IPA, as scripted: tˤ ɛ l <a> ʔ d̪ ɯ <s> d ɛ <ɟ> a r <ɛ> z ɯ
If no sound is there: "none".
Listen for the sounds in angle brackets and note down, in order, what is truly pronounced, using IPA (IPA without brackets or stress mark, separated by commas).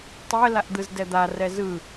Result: a, z, d̪, ɛ